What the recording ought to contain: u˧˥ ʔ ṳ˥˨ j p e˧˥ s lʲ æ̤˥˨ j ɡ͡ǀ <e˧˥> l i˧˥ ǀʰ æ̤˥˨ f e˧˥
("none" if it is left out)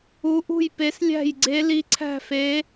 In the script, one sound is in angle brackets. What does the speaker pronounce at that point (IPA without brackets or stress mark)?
e˧˥